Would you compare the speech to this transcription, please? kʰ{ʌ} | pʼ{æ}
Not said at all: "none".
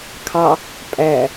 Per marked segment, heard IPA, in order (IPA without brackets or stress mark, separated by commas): ɑ, æ